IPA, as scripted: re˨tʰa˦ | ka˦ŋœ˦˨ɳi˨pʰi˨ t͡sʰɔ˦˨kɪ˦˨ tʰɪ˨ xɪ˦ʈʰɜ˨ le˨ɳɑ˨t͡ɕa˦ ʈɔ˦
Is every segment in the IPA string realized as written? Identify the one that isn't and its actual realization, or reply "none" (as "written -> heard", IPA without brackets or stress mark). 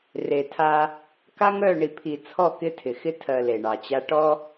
ʈʰ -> tʰ